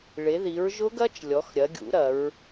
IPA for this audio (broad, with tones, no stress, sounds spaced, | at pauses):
ɭ e˩˥ ð i˩˥ ɹ ʒ ʊ˦˥ ɡ ɐ˦˥ t͡ʃ lʲ ɔ˩˧ x ɾʲ ɐ˩˧ ɡʲ ṵ˩˥ ɾ ɐ˩˧ ɹ